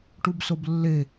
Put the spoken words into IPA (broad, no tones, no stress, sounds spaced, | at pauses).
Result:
ʈ u b s o b lː e